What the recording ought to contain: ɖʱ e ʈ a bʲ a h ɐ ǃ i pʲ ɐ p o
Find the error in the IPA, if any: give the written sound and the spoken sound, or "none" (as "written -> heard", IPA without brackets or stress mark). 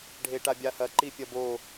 p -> b